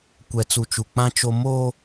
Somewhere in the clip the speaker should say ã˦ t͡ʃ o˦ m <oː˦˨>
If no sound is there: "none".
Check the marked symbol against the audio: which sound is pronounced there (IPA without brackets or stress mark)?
oː˦